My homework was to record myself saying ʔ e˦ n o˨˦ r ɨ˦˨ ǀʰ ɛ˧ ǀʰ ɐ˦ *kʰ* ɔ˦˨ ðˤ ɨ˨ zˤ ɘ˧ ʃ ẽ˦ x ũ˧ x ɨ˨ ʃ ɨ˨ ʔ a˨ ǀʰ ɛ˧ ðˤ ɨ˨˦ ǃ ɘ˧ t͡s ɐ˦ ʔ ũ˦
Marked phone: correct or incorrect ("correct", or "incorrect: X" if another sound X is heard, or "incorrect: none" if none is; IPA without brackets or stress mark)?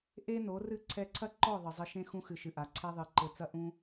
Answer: incorrect: ǃ